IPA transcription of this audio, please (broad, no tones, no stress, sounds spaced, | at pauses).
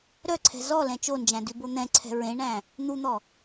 ɾ œ ǀʰ ɛ̤ z ɔ l ɛ̃ t͡ʃ o n d͡ʒ æ̃ d ʉ b o n̪ ɛ̃ ǀʰ ɛ̤ ɹ ẽ ɳ æ̃ | n̪ u n̪ ɔ